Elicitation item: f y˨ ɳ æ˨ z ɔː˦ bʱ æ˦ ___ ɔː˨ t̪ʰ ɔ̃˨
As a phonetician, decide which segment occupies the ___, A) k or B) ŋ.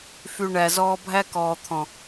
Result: A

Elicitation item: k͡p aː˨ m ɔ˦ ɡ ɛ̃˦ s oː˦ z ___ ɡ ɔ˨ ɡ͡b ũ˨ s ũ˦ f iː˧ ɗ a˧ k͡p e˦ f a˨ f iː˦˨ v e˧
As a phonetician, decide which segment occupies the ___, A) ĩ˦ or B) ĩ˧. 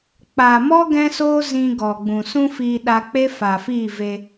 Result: B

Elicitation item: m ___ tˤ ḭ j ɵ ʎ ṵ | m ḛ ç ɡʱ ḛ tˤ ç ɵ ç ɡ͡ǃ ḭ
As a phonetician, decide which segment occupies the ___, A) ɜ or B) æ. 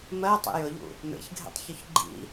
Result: A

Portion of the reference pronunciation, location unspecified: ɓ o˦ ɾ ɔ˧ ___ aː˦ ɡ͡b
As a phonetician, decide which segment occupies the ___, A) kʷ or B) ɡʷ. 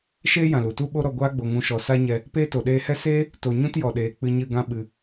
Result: B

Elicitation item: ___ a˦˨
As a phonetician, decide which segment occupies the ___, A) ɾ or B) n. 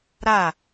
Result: A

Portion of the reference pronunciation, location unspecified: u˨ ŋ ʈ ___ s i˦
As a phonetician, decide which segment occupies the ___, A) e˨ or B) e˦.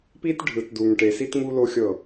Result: A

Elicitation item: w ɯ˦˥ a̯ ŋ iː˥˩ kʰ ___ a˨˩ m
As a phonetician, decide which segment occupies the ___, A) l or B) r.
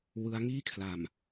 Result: A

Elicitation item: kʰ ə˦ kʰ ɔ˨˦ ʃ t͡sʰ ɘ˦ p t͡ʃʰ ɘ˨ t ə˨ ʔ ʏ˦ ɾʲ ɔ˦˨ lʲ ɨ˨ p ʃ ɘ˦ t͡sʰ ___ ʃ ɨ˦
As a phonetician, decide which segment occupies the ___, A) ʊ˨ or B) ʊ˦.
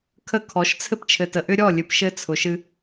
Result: A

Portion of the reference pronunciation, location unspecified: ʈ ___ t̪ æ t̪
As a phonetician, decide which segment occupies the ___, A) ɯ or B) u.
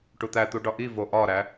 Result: B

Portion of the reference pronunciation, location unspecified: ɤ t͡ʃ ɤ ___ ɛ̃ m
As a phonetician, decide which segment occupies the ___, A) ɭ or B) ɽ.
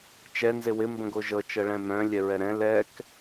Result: A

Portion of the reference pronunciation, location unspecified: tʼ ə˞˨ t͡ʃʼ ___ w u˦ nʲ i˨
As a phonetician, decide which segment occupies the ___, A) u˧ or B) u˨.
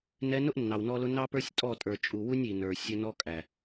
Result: B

